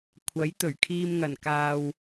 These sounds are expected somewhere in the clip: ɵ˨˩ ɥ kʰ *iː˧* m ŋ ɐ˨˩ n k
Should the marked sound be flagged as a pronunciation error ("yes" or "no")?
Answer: no